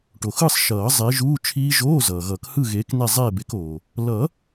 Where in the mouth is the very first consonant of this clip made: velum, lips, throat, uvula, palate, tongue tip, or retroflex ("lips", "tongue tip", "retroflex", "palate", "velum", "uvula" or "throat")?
retroflex